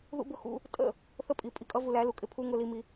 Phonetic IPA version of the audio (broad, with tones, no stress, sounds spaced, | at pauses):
ð ṵ˦ b ʊ˦ x ṵ˦ | tʼ ə̰˦˨ | θ ə˦ pʼ i˨ pʼ i˨ kʼ ʌ˦ v u˨ l æ˨˦ l u˨ kʼ ɪ˦ pʰ u˦ ŋ ʊ˦ l i˦ m i˦